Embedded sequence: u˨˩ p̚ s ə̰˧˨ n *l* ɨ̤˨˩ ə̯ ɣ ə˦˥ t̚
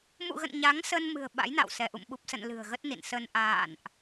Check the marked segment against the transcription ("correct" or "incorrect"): correct